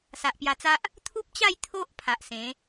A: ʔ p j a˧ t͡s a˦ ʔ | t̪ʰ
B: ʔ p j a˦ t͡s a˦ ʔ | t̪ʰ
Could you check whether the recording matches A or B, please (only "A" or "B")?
A